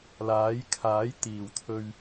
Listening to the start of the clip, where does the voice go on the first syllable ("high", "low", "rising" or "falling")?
rising